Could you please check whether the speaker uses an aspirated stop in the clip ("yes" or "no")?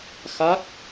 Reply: no